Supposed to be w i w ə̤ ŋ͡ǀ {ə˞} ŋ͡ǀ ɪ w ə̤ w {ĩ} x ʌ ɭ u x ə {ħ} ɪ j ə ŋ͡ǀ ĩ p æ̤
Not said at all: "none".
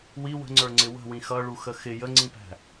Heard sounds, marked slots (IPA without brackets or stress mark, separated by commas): ə˞, ĩ, x